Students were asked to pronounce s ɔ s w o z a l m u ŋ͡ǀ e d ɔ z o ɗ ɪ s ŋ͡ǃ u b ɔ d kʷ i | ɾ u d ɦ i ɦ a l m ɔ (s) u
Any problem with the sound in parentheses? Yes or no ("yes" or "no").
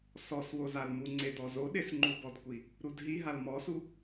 no